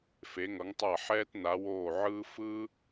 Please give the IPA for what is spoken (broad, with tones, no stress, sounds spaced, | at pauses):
f e˨˥ ŋ ʌ˨˥ ŋ tˤ a˥˩ ħ ɛː˥ t n a˨˥ w oː˥˩ ʕ ɯː˥ f ɯ˥